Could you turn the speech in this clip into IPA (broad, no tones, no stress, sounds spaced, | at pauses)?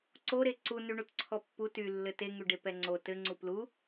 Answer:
ǀ o ɾ e ǀ u n y ɳ u t ǀʰ ɔ pː u t y lː ɘ t e ŋ y ɖ e p ɛ ŋ͡ǀ o t ɘ ŋ͡ǀ u p l u